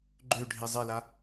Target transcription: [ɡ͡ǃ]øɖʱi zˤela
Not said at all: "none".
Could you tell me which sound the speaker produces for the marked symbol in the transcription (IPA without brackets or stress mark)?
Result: ɡ͡ǃ